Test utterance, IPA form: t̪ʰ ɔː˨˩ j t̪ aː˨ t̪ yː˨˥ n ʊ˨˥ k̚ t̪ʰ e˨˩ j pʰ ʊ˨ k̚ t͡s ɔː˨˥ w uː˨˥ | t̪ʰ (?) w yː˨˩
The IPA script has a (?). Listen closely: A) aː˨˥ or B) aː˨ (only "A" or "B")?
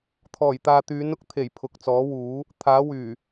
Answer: A